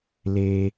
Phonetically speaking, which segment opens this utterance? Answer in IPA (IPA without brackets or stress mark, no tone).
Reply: l